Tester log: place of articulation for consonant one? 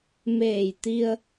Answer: labial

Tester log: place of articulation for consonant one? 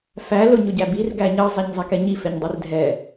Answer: labial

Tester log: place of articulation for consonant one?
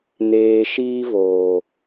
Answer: alveolar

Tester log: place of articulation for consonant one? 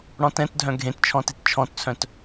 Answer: retroflex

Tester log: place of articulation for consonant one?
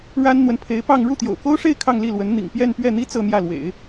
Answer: retroflex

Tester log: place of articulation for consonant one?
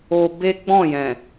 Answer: labial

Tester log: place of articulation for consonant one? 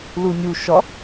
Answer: alveolar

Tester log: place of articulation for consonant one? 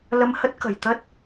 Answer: alveolar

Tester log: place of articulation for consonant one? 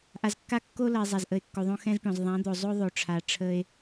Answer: glottal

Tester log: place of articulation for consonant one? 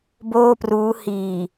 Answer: labial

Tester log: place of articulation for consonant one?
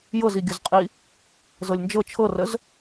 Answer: palatal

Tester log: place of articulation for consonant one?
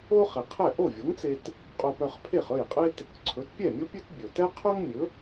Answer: uvular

